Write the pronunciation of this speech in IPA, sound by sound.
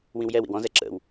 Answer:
w ĩ w j ɛ w ḭ w ɔ̃ z ɛ ǁ ə̰ w

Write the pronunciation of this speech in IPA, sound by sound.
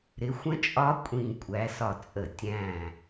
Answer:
ɾ ɪ˨˦ xʷ ə̃˦˥ t͡ʃʼ ɒ˦˥ kʷʼ ĩ˧˩ kʷʼ æ˨˦ s ɒ˧˩ t͡sʼ ə˧˩˧ tʲ æ̃˧˩

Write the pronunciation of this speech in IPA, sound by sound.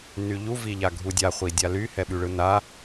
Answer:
n y ʎ u v i ʎ a ɡʱ u dʲ a χʷ i dʲ a l y h ɛ ɓ y ɭ ɯ n a

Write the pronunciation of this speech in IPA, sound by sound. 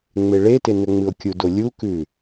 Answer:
ŋ͡m e ɭ e t e n ɵ ŋ͡m ɨ o̯ kʲ u d o lʲ u k ʉ

